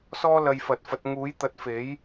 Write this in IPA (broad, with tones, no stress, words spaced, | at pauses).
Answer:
sɔː˥ lɐ˧jfɐ˨˥t̚fɐ˨˥t̚ ŋuː˨˥jt̪ɐ˨˥t̚fe˨˥j